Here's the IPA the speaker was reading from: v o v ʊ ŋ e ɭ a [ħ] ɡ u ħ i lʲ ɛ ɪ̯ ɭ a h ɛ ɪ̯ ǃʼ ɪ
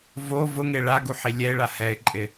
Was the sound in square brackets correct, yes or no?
no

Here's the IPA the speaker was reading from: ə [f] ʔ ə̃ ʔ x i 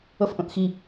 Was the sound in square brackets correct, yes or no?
yes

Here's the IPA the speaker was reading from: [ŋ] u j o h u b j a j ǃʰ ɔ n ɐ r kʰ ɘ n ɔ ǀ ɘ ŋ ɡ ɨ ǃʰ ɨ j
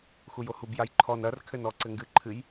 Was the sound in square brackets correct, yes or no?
no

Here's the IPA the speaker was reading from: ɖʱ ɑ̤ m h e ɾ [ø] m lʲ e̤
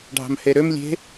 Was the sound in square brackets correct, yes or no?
yes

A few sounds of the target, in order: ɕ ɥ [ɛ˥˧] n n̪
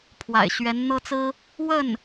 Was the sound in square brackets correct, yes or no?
no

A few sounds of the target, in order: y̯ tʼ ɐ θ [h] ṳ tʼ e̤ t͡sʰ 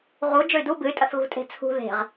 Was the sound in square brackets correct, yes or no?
no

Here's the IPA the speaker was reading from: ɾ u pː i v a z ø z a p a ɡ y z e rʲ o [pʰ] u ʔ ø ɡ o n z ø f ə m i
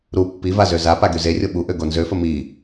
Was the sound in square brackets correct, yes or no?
no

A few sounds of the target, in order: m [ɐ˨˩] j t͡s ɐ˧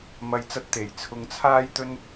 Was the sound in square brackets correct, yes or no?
no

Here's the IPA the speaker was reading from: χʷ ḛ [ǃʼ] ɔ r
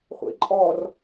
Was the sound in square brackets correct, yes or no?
yes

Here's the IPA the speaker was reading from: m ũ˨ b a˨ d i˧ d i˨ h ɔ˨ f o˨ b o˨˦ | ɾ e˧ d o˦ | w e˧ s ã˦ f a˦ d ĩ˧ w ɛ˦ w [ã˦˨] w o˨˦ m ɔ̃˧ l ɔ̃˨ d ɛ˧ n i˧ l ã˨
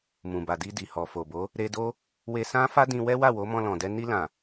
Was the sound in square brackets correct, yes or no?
no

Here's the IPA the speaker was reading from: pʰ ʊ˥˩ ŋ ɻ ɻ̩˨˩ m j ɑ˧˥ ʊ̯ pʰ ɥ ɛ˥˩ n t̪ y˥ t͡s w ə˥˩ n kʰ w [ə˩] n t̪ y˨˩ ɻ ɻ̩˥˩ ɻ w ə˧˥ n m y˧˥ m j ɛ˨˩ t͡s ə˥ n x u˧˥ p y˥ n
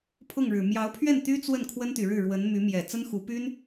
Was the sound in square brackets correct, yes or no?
no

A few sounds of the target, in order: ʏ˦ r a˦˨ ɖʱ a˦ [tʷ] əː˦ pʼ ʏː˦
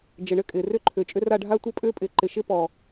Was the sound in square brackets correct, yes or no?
yes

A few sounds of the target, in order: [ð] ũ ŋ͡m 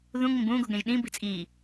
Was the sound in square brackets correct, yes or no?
yes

